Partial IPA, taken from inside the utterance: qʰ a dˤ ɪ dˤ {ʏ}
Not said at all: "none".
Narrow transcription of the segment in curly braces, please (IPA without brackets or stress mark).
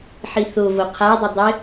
ɪ